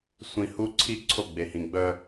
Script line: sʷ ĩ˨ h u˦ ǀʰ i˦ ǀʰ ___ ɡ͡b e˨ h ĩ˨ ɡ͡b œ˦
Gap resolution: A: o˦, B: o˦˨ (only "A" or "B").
B